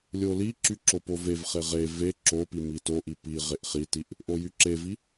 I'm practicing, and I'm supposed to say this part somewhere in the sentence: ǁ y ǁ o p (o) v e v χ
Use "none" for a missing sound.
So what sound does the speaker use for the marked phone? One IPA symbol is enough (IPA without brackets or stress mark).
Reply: o